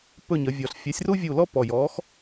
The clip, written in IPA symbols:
p ɵ˦˨ ɲ ə˩˧ vʲ ɔ˨˩ ɬ fʲ ɑ˨˥ sʲ r u˥ vʲ u˦˨ l ɔ˥ p ɔ˨˩ j ɔ˨˥ x

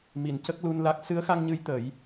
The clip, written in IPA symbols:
m i˨˩˨ n c ə˦˥ k̚ l u˧ n l a˦˥ k̚ s ɨ˧˥ ə̯ x a˧ ŋ ɲ ɨ˧˥ j t̪ ə˨˩˦ j

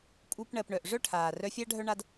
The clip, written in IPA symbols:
kʼ u˧ p ɳ ɜ˨ p ɳ œ˨ ʔ ʐ œ˦ ʈʰ aː˨ r œ˧ fʲ a˦ ɖʱ œ˦ ɳ a˦ d

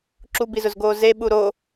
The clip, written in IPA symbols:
ǁ u b i z ʊ z ɡ oː z e ɓ u ɾ o

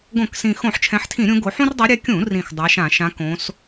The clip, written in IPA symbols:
ɡ õ˧˩˧ k s ĩ˨˩ x õ˧˩˧ ħ t͡ʃʰ ɛ̃˨˦ ħ tʰ ĩ˧˩˧ ɾʲ ũ˨˦ ɡ o˨˦ ħ ũ˦ r dˤ ʌ˨˦ ɾʲ ɛ˨˦ kʲ ũ˧˩˧ r ĩ˨˩ x dˤ a˨˦ ʃ ã˧˩˧ ʃ ã˨˦ k õ˨˦ s

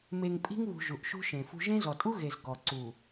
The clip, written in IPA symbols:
m e˨ ŋ pʼ i̤˦ ŋ β ṳ˨ ʒ u˨ ʔ ʃ ṳ˦ ʃ ẽ˨ f ṳ˦ ʒ ẽ˦ z ɔ˨ tʼ u˦ ɣ e˨ z ɡ ɔ˨ ǀ u˨

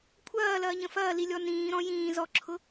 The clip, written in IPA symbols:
kʷʰ ɐː l ɐː ɲ ə̃ f ɐː l i lʲ ɔ n ĩː ɾ ɔ̃ j ĩː z ɔ ǁʰ ʊ

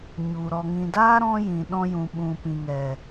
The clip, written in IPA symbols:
ɲ u˨ ɾ ɔ˨ ŋ ĩ˨ d aː˦ ɾ ɔ̃˦ j ĩ˨ ɗ ɔ̃˧ j ũ˨ ɓ ũ˨ p ĩ˨ ŋ ɛ˨

